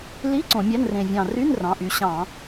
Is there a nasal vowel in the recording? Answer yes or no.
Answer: yes